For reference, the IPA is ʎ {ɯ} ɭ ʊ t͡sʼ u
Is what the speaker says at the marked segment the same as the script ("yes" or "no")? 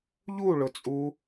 no